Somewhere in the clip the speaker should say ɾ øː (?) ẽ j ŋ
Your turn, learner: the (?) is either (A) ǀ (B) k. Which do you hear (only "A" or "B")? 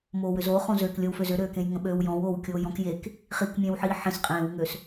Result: B